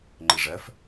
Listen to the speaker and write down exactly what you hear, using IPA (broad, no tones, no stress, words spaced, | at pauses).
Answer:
ŋ͡ǃɪʐɜf